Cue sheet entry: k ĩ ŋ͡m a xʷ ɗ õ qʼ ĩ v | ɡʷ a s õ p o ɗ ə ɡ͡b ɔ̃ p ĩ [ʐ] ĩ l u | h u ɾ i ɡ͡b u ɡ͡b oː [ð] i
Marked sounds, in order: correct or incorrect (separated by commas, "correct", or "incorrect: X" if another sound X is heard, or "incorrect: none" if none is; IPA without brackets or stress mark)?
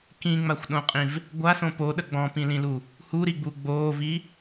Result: incorrect: l, incorrect: v